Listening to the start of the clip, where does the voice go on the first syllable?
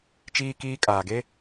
high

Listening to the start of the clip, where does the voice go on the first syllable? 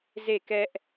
falling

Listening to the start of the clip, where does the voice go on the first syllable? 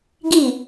falling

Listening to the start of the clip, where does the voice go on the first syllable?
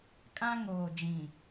high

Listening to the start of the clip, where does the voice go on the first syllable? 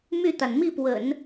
falling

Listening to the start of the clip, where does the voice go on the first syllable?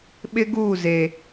high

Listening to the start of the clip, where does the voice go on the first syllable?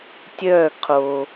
falling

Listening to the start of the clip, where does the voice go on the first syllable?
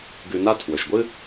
low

